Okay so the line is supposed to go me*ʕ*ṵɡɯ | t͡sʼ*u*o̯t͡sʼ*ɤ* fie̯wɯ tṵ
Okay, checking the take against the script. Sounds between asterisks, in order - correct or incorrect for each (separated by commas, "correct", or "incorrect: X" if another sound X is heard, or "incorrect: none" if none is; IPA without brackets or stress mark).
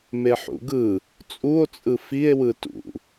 incorrect: ħ, correct, incorrect: ɯ